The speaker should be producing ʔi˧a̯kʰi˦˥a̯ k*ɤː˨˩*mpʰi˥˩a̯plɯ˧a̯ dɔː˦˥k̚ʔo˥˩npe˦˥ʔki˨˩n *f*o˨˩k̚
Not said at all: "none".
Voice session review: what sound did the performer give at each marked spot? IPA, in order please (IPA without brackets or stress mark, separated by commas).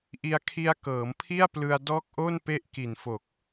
ɤː˩˦, f